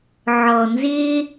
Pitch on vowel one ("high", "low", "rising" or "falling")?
low